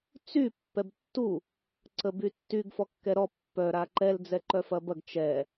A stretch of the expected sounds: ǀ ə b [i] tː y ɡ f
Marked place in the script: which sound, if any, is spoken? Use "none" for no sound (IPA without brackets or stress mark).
y